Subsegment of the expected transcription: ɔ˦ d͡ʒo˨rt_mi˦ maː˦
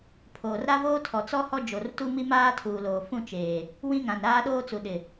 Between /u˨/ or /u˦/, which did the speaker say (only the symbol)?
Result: u˦